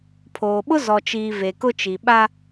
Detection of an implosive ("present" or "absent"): present